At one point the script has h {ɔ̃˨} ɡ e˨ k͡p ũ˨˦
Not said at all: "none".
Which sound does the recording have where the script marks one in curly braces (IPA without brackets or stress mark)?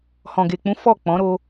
ɔ̃˨